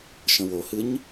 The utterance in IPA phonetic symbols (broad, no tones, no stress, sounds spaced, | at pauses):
ʃ ə̃ w o h ɨ ɲ